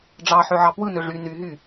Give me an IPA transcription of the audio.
ɖ͡ʐ ɑ ħ ø ʕ ɑ p w ɯ n ø ʐ y n y ɦ y

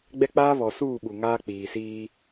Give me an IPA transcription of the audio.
ɡ͡b ɛ˦ k͡p aː˦ β ɔ˨ s uː˦˨ ɓ u˨ ŋ aː˦ k͡p iː˨ s iː˦

